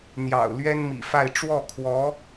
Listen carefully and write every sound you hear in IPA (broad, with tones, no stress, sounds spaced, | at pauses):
n̪ j ɑ̰˨˩ ʊ̯ l ɥ ɛ˥ n m ḭ˨˩ f a˥˧ ɪ̯ ʈ͡ʂ w ɔ˥˩ kʰ w ɔ˧˥